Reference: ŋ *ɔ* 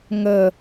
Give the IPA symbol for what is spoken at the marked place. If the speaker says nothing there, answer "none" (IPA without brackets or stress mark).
ə